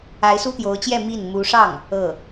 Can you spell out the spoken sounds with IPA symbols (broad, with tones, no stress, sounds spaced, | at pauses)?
a˧˥ ɪ̯ s u˥ t̪ j o˧˥ ʊ̯ t͡ɕ j ɛ˥˧ m i˥˩ n m u˧˥ ʂ ɑ˥˩ ŋ | ɤ˥˩